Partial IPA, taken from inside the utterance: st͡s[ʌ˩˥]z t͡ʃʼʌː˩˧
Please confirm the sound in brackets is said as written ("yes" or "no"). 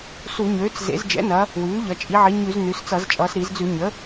no